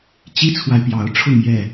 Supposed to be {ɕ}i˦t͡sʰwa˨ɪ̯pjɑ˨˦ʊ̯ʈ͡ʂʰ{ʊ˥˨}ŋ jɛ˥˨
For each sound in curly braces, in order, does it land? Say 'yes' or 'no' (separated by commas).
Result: no, yes